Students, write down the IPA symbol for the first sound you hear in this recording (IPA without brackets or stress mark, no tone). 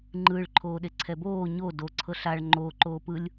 ŋ͡ǃ